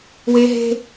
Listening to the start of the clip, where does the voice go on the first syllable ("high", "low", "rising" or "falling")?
high